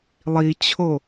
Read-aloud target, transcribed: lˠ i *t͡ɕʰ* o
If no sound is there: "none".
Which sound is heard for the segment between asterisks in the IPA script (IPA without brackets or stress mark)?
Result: t͡ɕʰ